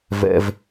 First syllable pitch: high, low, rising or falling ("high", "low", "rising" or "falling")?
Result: high